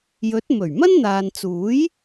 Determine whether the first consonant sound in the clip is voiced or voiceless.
voiced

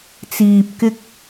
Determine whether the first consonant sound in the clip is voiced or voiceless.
voiceless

